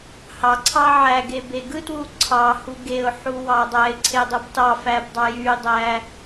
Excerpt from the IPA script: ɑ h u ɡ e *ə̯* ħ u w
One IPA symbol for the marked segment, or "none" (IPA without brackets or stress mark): ʊ̯